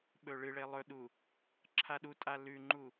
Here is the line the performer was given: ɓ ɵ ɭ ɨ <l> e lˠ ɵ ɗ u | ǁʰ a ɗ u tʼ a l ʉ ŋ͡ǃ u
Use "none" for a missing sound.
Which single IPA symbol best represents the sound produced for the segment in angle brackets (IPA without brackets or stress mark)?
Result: ɭ